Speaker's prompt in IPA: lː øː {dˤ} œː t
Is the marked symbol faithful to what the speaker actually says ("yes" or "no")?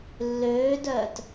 no